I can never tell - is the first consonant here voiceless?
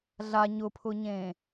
no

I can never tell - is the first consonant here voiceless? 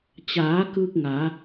yes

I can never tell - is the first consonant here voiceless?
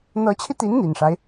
no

